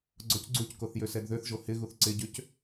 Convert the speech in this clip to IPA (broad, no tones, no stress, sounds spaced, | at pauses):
ɡ͡ǀ ɔ c ɡ͡ǀ u c k o θ j ø s ɛ d ð ø θ ʒ o h ɪ ɣ u θ ǀ ɪ ɟ ø c